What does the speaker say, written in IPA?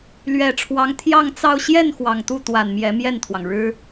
l ɥ ɛ˨˩ ʈ͡ʂʰ w ɑ˧˥ ŋ t̪ʰ j ɑ˥˧ ŋ t͡s ɑ˥˧ ʊ̯ ɕ j ɛ˥˩ n x w ɑ˨˩ ŋ t̪ u˥˩ t̪ w a˨˩ n m j ɛ˧˥ m j ɛ˥˩ n t̪ʰ w ɑ˩ ŋ ɻ ɻ̩˥

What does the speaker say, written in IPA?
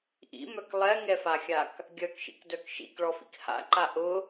ʔ ḭ m œ k lˠ ɛ ŋ ɛ f a xʲ a k | ɡʲ œ k ʃ ḭ k d œ k ʃ ḭ k ɭ ɔ f ḭ k h a̰ ǃ a ʔ ʊ

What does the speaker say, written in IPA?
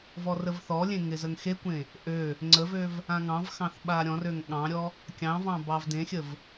v ɔ r ə v θ ɔ lʲ ẽ ŋ ɪ z ə ŋ x e kʷ ẽ | ʔ ø | ŋ͡ǀ ə v ø v | ã ŋ ɑ̃ v x ɑ̃ θ ɓ a ɾʲ ɔ̃ r ø ŋ ɠ ɑ̃ ɾʲ ɔ | kʲ ɑ̃ v ɑ̃ b ɑ v d ẽ xʲ ə v

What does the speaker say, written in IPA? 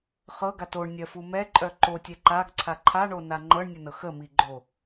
χ ɤ ɡ a t o ɳ nʲ ɜ f u m ɛ ǃʼ œ ǃ o tʲ ɛ ǃ a ɡ ǀʰ a ǃʰ a ɳ o n a ŋ͡ǃ ɤ ɳ nʲ ə n ɤ x ə m i ɡ͡ǃ o

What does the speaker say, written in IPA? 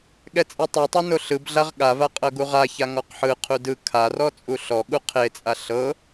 ɠ ɛ t͡sʼ ɛ tˤ ɛ tˤ ɤ n o ɬ ɯ b ɮ a ʁ ɠ a v a qʼ ɤ ɡ u ʁ a ç a ŋ ɔ q ħ ɯ qʰ u d ɯ kʰ a r ɔ t͡sʼ u ɬ ɔ ɠ u qʰ e t͡sʼ a ɬ ɤ

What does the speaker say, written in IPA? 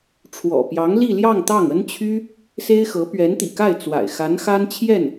ʈ͡ʂʰ w ɔ̰˨˩ p j ɑ˧˥ ŋ l i˥˧ l j ɑ˥˧ ŋ t̪ ɑ˥˩ ŋ ə˥ n t͡ɕʰ y˥ | s e˥ ɪ̯ x ɤ˧˥ p ɥ ɛ˧˥ n t̪ ḭ˨˩ k a˥˩ ɪ̯ t͡s w a̰˨˩ ɪ̯ x a˧˥ n x a˥ n t͡ɕʰ j ɛ˥˩ n

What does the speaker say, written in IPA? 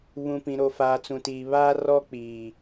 β ũ˨ p ĩ˨ ɾ o˨ f aː˨ t͡s ũ˨ t iː˨ β aː˦ r ɔ˦ k͡p iː˨

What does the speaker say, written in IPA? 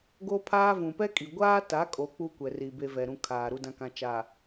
ɡ o˦ pʰ aː˦ v ũ˨ p ɛ˦ kʼ i˨ ɡʷ aː˦ t a˨˦ kʼ o˨ k͡p u˦ kʷ ɛ˨ r i˨ b e˦ v ɛ˨ ɾ ũ˦ kʰ aː˨ ɾ u˨ d ã˨ k ã˨ t͡ʃ a˨

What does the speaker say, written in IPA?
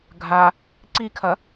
ɡʱ a | ǀ i kʰ ɐ

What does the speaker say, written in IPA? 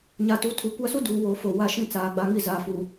ɲ a˨ t u˨˦ tʰ u˨˦ kʷ a˦ s u˦ d uː˨ w oː˨ f o˨ w a˦˨ ʃ ĩ˦˨ t͡s aː˨ ɡ͡b a˦ ŋ i˦ z aː˨ f uː˨

